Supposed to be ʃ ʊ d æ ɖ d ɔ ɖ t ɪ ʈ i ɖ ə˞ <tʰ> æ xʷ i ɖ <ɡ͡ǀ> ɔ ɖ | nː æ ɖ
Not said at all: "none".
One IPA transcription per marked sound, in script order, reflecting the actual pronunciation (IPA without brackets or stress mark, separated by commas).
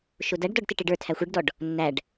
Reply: tʰ, d